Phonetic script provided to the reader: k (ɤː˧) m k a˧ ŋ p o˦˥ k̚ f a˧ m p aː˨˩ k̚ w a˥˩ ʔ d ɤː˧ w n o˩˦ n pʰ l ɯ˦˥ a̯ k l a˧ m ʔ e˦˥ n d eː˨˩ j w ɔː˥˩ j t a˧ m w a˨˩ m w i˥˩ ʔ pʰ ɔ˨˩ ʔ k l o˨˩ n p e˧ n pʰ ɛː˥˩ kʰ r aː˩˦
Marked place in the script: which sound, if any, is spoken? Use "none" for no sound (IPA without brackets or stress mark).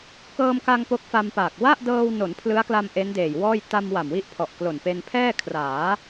ɤː˧